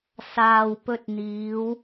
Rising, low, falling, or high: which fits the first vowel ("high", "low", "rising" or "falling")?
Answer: low